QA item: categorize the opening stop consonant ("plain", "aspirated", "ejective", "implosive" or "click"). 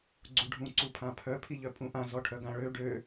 click